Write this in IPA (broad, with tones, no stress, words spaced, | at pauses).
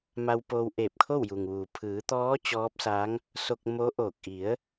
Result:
ma˧wpoː˧w ʔeː˧˩p̚kʰo˥˨wju˩ŋʋuː˩ pʰɯː˩˧t̪ɔː˧˥ t͡ɕɔː˧˥p̚sa˧˥ŋ | so˧k̚ mo˧˥ʔoː˧˩k̚ ʔi˩˧ə̯